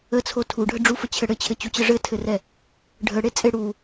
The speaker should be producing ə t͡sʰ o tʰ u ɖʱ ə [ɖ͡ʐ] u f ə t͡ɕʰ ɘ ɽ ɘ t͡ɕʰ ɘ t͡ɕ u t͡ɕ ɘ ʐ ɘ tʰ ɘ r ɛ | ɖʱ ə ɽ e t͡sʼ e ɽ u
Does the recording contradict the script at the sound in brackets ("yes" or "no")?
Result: no